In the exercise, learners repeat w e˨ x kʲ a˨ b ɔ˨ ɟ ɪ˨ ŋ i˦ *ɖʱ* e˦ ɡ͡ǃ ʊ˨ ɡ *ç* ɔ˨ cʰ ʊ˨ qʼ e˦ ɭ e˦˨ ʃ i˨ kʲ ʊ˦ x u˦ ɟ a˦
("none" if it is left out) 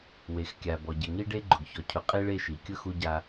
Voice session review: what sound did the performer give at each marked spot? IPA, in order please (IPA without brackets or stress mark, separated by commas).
ɖ, ç